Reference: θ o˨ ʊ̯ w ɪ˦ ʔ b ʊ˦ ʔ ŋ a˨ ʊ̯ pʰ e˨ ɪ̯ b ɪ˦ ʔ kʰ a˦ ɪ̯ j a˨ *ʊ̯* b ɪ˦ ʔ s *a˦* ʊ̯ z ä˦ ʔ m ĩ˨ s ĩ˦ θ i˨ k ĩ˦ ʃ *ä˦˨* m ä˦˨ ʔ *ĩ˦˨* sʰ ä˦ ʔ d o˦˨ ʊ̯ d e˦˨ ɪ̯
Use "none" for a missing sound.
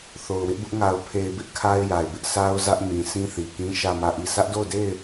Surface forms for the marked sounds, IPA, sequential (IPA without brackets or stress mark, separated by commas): ɪ̯, a˦, ä˦˨, i˦˨